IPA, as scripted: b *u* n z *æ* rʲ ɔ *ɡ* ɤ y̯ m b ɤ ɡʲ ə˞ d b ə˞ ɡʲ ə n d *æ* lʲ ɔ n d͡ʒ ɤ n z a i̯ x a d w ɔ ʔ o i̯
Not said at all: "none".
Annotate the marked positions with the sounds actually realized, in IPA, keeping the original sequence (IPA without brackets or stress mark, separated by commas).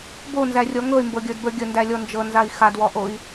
o, æ, ŋ, æ